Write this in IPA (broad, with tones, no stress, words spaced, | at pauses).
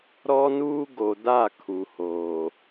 ɾɔ˦nuː˦ ɡo˨da˦˨ kʰu˨hoː˨